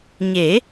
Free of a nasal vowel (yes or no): yes